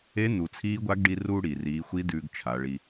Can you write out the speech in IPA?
e˧˥ n̪ u˩ t͡sʰ iː˧˥ ɡʷ a˧˥ ɡ ɖ i˧ r u˧ ɽ i˩ r iː˩˧ xʷ i˧˥ d ʉː˧ ɡ t͡ʃʰ a˩˧ ɭ i˧

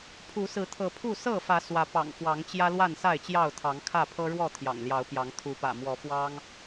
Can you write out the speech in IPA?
pʰ u˨˦ s ɹ̩˨˦ t̪ʰ ɤ˨˦ pʰ u˥˨ s ɤ˥˨ f ä˨˦ s w ä˨˦ p ɑ̰˨˩ ŋ f w ɑ˨˦ ŋ t͡ɕ j ä˦ l w a˥˨ n s a˥˨ ɪ̯ t͡ɕ j ɑ˥˨ ʊ̯ t̪ʰ ɑ˨˦ ŋ kʰ ä˥˨ pʰ ɤ˦ ɻ w ɔ˥˨ t̪ʰ j ɑ̰˨˩ ŋ l j ɑ˨˦ ʊ̯ p j ɑ˨˦ ŋ t̪ʰ u˨˦ p ä̰˨˩ m w ɔ˨˦ f w ɑ˦ ŋ

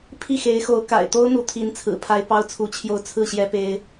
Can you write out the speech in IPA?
pʰ i˥˩ x e˧˥ ɪ̯ x o˧˥ ʊ̯ k a̰˨˩ ɪ̯ t̪ o˥ ʊ̯ n̪ u˧˥ t̪ʰ i˧˥ n t͡sʰ ɹ̩˨˩ pʰ a˥ ɪ̯ p ɑ˥ ʊ̯ t͡sʰ u˧˥ t͡ɕʰ j o˥˧ ʊ̯ t͡sʰ ɹ̩˥˩ ɕ j ɛ˥ p e˥ ɪ̯

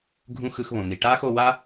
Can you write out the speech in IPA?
ɡʱ ũ˧ x ɯ˧ x β õ˩ n̪ i˩ ʈ aː˥ x o˧ w a˥

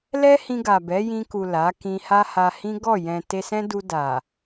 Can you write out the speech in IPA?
l ɛ˦ h ĩ˧ ɡ a˨ b ɛ˨˦ j ĩ˧ k u˨ l a˨˦ k ĩ˧ h a˦ h a˧ h ĩ˦ ɡ ɔ˦˨ j ɛ̃˨ t e˧ s ɛ̃˦ d u˧ d a˨

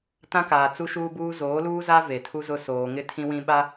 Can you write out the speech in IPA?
t ã˦ k aː˨ t͡s u˦ ʃ uː˦ b uː˦ z oː˨˦ l uː˦ z a˦ v e˨ tʰ u˦ z ʊ˦ s oː˨ ŋ ɪ˦ tʰ ĩ˦ w ĩ˦ ɓ a˦

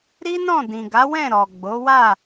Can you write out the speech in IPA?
ɾ i˦ n ɔ̃˦˨ d ĩ˨ ɡ a˨˦ w ɛ̃˦˨ ɾ ɔ˨ ɡ͡b o˨˦ w a˦˨

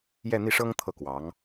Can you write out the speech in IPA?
j ɛ˥˧ n̪ i˥˩ ʂ ɤ˥ ŋ t̪ʰ ɤ˥˩ k w ɑ˧˥ ŋ

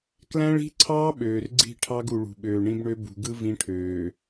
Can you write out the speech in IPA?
k l æ̃˦ ɭ i̤˦ ǀʰ ɑː˦ ɓ øː˨ r ɡ͡ǀ i̤˦˨ ʈʰ ɑ˦ ɡ u˨ ɭ ṳ˨ ɓ øː˨ ɳ ĩ˦ b ɳ ø˦ b ṳ˨ ɡ ɯ˦ v ĩ˦ ʈʰ øː˨

